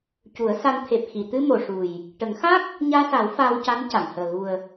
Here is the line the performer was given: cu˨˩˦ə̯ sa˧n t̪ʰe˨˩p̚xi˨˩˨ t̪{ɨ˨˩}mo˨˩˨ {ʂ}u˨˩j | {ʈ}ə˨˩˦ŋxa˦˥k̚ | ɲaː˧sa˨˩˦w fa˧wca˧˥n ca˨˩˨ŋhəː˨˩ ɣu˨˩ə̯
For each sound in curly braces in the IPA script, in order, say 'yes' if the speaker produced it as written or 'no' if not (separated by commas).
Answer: no, yes, yes